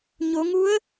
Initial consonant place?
palatal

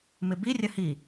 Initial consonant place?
labial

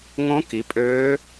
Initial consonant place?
velar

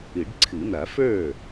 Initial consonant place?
retroflex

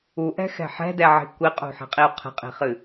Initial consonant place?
glottal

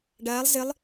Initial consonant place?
retroflex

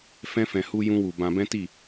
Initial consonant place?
labial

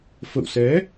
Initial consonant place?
labial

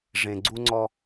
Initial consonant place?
retroflex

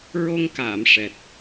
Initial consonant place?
alveolar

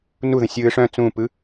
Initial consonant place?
alveolar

